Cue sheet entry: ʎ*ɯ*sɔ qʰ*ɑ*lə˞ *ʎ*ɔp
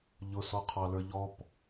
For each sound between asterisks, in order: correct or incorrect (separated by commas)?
incorrect, correct, correct